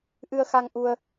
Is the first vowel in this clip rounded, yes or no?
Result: no